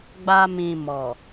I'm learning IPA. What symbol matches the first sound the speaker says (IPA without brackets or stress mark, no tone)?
ɡ͡b